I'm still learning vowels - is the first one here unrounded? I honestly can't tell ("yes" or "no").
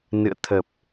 yes